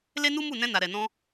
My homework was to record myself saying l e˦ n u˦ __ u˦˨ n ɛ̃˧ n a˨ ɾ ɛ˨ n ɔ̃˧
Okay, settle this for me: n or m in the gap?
m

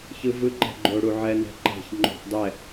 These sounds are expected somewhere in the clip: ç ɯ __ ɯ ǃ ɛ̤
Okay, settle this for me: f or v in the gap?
v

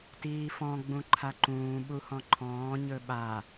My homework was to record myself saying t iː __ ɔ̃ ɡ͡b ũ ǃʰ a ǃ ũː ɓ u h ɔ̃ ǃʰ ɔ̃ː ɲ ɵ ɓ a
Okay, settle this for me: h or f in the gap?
f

